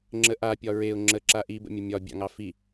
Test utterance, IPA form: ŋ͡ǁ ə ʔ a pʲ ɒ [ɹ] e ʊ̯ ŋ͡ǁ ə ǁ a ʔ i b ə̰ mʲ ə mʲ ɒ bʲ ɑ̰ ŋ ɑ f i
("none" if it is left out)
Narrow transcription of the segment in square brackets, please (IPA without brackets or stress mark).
ɹ